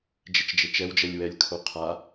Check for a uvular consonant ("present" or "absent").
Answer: present